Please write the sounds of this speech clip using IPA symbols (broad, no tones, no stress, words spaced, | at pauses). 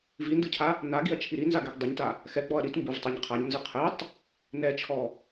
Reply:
vindɯcʰa | naɡiɐ̯t͡ʃʰi ɾinzaɡɛɡ dˤiɲta | xɛɡ͡bɔɐ̯ ɾit mbɯvtˤɛɲ qʰaɲnzɯ qʰɛtˤ | nɛt͡ʃʰɔ